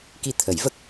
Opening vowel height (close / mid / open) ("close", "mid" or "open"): close